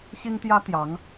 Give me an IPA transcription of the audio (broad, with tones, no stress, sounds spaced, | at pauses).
ɕ i˥ ŋ t̪ j ä˥ t̪ j ɑ˧˥ ŋ